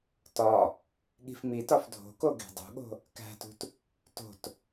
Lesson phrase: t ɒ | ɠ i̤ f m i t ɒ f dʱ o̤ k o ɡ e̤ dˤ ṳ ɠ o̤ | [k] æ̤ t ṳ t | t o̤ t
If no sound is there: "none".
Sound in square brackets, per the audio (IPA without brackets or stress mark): k